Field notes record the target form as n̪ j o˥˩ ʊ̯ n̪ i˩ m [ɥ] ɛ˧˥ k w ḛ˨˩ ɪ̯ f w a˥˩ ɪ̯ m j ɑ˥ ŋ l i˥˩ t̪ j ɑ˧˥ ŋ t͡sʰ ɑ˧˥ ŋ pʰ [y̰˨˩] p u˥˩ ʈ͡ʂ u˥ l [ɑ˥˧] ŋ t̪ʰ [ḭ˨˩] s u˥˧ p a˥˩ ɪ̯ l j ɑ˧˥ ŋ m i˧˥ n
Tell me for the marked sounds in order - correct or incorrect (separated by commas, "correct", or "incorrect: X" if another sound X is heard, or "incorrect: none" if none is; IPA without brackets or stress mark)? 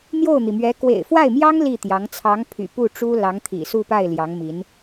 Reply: correct, correct, incorrect: ɑ˧˥, correct